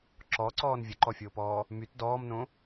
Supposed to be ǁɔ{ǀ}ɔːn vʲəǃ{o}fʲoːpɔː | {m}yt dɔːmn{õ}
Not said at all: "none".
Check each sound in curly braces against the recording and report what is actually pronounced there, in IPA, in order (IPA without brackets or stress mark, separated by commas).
ǀ, ɔ, m, õ